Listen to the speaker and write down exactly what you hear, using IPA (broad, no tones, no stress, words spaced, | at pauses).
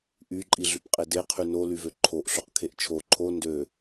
ʔy ǃʼiɮypqʼede qʰyno lyvøǃʰoʔ ɬoqkʰeʔt͡ʃʰo ǃʰo ndø